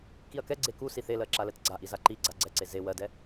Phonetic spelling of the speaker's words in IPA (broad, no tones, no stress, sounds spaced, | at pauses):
k i ɐ̯ k ɛ ɡ͡ǀ e k u s i θ e l ɜ ǁ a l ɛ t ɡ͡ǀ a ʔ i z a ǃ i ɡ͡ǀ a ɡ͡ǀ ɛ ǀ e z e w ɜ d ɛ